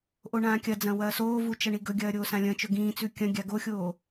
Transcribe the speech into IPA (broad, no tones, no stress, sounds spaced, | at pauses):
ʔ o ɳ ãː kʲ ɐ d͡z ɐ̃ w ɐː s oː v u t͡ʃ ɐ ɳ i ɡ ɵ ɡʲ ɐː ɾʲ oː s ã lʲ ɐ̃ t͡ʃ ɵ ɡ ĩː t͡s ʉ kʲ ɐ̃ ɡʲ a ɡ o xʲ oː